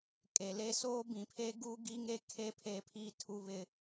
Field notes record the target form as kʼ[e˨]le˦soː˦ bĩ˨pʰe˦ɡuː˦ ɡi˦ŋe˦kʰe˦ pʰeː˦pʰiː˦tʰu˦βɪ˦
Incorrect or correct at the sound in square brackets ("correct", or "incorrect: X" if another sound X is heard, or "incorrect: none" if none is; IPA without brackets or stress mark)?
correct